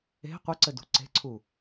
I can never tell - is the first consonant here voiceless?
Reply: yes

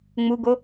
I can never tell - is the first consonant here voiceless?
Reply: no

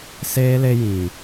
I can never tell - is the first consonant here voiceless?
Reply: yes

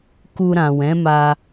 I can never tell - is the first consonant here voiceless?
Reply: yes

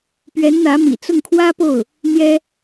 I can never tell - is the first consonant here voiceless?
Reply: yes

